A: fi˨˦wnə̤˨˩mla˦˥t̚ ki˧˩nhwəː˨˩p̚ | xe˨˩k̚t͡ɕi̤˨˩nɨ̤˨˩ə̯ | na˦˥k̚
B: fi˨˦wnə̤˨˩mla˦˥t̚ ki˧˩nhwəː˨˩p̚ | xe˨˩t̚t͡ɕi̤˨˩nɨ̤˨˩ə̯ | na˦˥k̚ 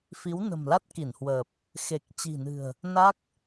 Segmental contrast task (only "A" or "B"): A